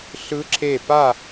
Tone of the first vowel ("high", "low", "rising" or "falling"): rising